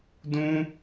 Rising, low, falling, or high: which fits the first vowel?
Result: high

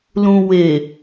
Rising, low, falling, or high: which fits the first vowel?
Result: low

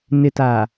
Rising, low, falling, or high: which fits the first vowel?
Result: low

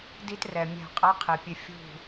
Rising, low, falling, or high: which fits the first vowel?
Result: high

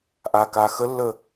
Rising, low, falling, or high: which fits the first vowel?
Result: low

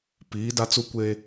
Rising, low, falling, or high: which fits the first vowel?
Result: rising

